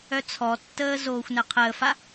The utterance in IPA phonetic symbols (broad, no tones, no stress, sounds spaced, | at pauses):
œ t͡sʰ ɔ tː əː z oː xʷ n ɛ qʰ əː f a